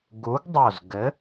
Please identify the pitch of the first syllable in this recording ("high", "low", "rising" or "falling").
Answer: rising